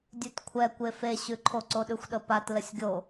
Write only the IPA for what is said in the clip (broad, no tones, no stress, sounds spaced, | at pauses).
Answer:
dʲ ʉ t kʷʰ ɛ kʷ e f e ɕ ʉ ǃʰ o ǀ o ɗ ʉ xʷ ɗ ə p a t l ə sʲ ɡʲ o